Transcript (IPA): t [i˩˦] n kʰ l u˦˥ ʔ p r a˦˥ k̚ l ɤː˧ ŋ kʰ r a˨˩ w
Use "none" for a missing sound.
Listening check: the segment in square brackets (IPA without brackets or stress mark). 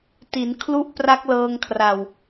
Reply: i˩˦